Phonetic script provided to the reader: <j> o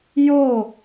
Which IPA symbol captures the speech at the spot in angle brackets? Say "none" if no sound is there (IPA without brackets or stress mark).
j